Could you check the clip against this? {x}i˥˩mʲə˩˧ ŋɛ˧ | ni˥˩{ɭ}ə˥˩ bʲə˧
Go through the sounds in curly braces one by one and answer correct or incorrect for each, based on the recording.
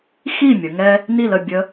correct, incorrect: l

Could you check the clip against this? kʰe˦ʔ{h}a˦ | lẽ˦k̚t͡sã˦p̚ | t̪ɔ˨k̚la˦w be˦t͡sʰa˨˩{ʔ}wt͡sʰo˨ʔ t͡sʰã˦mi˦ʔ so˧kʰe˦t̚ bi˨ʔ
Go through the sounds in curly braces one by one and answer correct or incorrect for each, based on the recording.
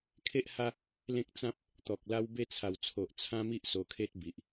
correct, incorrect: none

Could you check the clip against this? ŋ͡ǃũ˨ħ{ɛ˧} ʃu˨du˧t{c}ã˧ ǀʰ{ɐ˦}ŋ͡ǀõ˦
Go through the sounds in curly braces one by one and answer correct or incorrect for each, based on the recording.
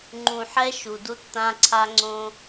correct, incorrect: t̪, incorrect: a˦

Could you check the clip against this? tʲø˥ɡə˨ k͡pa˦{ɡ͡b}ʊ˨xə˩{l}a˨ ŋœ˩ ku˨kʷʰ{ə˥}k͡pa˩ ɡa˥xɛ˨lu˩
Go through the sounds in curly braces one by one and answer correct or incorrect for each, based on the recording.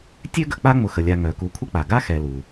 incorrect: ŋ͡m, incorrect: lʲ, correct

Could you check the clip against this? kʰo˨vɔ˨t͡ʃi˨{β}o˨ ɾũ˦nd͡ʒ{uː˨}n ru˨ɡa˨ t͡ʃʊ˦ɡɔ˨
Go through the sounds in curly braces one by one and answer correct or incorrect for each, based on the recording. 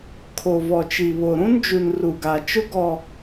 correct, incorrect: u˨

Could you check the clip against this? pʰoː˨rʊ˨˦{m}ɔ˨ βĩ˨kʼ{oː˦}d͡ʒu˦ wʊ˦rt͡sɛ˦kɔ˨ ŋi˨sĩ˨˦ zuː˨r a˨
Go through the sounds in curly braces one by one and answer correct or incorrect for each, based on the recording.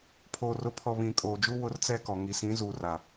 incorrect: pʰ, incorrect: oː˨

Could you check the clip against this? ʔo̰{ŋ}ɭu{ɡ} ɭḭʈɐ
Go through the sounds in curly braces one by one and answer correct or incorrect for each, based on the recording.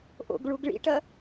incorrect: ɡ, correct

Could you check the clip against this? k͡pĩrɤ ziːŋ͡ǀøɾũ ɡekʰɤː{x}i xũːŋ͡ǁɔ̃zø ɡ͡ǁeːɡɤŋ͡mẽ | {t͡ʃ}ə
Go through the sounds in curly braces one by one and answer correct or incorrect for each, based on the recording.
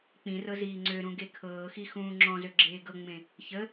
correct, incorrect: ç

